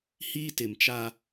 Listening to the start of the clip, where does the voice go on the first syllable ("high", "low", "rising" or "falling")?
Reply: high